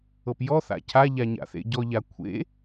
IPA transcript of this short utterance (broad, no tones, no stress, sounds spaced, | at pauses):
ɤ p j ɔ θ a̰ cʰ a ʎ a ɲ a̰ θ ḛ ɟ ɔ ʎ a kʷʰ ḛ